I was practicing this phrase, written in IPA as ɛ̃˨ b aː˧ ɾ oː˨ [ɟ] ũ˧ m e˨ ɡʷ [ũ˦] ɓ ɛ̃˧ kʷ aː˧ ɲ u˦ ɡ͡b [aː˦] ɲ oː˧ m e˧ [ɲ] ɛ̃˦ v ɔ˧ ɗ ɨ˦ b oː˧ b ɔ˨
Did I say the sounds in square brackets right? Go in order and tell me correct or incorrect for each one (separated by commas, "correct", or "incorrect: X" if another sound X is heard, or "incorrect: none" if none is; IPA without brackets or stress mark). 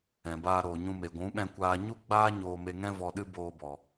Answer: incorrect: ɲ, incorrect: ũ˨˦, correct, incorrect: ŋ